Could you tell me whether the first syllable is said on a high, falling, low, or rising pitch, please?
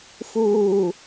falling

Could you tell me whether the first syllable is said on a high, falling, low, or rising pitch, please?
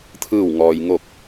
falling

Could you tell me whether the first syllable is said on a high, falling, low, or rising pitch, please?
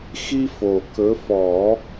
high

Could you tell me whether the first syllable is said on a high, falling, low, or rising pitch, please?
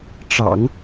low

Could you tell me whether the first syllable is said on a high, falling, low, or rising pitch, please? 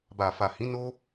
low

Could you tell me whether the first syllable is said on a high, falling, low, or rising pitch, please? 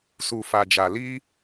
low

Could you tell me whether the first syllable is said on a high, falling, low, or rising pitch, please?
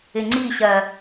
low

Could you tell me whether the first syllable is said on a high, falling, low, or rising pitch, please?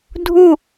falling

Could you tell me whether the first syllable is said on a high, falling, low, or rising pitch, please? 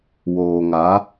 low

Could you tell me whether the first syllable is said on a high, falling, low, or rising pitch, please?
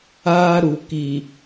high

